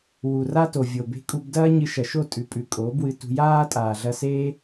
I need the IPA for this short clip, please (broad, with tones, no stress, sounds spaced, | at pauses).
w u˨ r a˦ t o˨ vʲ o˨ b e̤˧ kʼ u˧ b d ɐː˦ ɲ ɨ˧ ʃ ɐ˨ ʃ o˦˨ tʼ ʉ˨ pʼ ʉ˨ kʼ oː˨˦ b w ɨ˧ t ṳ˧ j aː˦ tʼ aː˨ ɮ ɐ˧ s eː˦